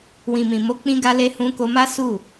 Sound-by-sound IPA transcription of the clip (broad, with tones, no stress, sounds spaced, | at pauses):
w ĩ˨ m ĩ˨ m o˨˦ k͡p ĩ˧ ɡ a˧ l e˧ h ũ˧ k o˧ m a˦ s u˦˨